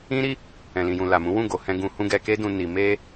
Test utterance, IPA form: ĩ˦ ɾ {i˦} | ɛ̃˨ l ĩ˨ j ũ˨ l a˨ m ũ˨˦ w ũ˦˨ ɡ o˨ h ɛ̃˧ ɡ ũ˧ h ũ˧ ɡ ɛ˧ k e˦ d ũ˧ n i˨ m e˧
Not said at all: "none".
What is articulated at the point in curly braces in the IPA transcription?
i˦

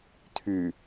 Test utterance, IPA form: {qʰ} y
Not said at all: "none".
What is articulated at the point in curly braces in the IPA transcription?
tʰ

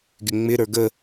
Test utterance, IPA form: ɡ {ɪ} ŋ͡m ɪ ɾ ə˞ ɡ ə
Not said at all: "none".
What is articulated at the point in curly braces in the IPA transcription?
ɪ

